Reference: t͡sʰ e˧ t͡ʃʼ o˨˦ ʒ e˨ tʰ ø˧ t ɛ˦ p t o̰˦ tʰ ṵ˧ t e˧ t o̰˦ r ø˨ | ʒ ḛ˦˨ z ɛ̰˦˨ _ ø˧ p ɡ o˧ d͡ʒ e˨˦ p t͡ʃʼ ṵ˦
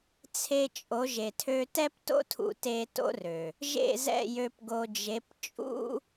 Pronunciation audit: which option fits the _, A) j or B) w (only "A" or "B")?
A